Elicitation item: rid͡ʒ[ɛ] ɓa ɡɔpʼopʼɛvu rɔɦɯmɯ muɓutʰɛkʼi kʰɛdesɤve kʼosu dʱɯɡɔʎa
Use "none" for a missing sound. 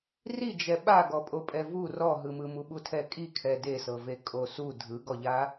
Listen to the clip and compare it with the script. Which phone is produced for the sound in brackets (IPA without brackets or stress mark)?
ɛ